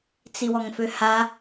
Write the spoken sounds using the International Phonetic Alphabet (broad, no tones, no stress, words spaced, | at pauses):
t͡siwɔŋføha